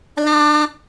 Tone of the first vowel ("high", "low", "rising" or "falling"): high